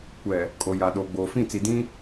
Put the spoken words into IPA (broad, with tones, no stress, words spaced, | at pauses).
kʷɛ˨ | kʼo˨ja˨ ɗoː˨ɡ͡boː˨fĩ˦˨t͡si˨ dĩ˦